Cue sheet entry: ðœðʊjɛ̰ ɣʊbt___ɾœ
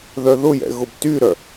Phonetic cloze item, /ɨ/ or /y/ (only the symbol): y